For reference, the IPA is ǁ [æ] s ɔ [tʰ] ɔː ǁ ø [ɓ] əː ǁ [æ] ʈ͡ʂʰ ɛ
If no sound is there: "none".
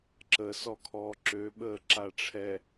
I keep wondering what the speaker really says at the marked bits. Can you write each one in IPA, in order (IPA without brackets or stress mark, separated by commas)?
ə, kʰ, ɓ, a